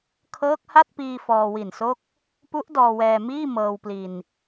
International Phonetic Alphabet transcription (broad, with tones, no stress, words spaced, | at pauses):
kʰɤː˦˥k̚ha˥˩t̚piː˧ fɔː˧wi˨˩nso˥˩k̚ | pu˦˥ʔ dɔː˧wɛː˧miː˥˩ mɤː˧wpli˧n